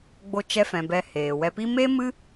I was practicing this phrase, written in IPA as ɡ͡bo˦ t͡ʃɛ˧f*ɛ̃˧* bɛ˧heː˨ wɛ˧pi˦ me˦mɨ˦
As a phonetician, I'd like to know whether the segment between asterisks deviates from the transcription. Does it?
yes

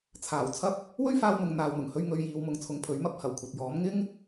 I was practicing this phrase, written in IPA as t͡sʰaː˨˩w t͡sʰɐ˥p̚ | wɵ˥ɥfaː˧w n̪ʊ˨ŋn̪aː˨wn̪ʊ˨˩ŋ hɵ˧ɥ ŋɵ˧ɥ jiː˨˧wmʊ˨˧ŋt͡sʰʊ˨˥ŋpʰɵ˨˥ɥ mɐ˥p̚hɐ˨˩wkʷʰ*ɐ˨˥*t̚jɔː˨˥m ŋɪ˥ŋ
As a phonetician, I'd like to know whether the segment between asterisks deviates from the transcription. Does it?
yes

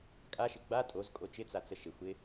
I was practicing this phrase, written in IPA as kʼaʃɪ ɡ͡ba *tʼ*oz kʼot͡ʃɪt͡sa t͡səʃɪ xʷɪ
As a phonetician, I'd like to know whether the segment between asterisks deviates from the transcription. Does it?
no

